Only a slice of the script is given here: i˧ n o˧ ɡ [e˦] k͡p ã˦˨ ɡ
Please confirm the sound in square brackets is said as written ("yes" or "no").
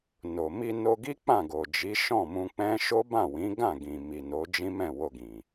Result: no